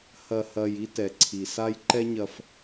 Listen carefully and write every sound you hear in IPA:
hɐ˨hɐ˨j i˦tɛ˨ǀʰi˨sa˦j ǃɛ˦ɲɐ˨f

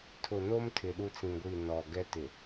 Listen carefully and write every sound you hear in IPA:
tʰʊ˨no˦m tʰɪ˨ɗu˦t͡sĩ˨ɡʷi˦˨ nɔ˨ ɡɛ˦tɪ˨

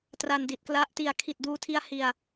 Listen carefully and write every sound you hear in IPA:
tra˧ndi˨˩t̚kla˦˥ʔ ti˧a̯ kʰi˨˩t̚duː˧tʰi˧a̯ hi˨˩a̯

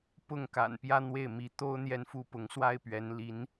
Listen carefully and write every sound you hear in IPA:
pʊ˥˩ŋka̰˨˩n pjä˥n̪we˥˩ɪ̯ mi˧˥ t̪o˥ʊ̯ n̪jɛ˥nfu˥pʊ˧˥ŋ swa˥ɪ̯pɥɛ˧˥nli˧˥n

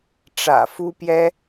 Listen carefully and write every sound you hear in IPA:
ʈ͡ʂä̰˨˩fu˦pjɛ˦

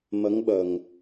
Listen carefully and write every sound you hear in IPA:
mə˧˥ŋɓə˨˩ŋ

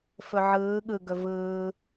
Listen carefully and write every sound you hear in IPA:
fɵʕɯː ɠɯ ɡɵvɯː

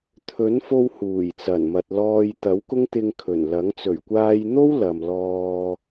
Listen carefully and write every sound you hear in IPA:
t̪ʰɵ˨˥nfo˧w huː˨˩jt͡sɐ˨˩nmɐ˨t̚ lɔː˧j t̪ɐ˨˥wkʊ˥ŋt̪ɪ˧ŋ kʰɵ˨˩nlɐ˨˥ŋ t͡sɵ˨˩ɥkʷaː˧jn̪o˥w lɐ˨mlɔː˧

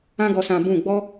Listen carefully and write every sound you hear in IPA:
ã˦ɡɔ˧sã˧ bũ˦˨ ɡ͡bɔ˦

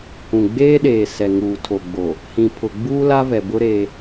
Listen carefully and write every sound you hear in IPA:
hũ˨ɡ͡beː˦ɗeː˨ sɛ˨ŋuː˨tʰo˨ɡ͡bo˨ | hĩ˨ pʰʊ˨ɡ͡buː˦la˦vɛ˨ bʊ˦ɾe˦

